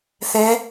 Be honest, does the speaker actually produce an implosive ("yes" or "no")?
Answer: no